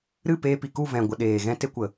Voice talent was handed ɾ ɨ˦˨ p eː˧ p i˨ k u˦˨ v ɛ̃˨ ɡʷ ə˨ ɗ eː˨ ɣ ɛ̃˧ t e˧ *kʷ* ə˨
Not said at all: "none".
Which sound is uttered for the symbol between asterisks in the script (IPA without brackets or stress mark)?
kʷ